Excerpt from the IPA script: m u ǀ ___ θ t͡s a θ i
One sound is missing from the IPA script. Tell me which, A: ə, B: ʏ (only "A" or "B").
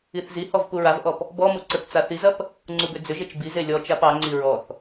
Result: A